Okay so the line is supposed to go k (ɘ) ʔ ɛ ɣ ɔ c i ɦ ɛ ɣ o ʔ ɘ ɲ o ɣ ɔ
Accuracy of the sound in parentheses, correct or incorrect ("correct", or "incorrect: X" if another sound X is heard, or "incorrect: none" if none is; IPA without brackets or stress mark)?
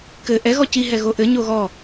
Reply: correct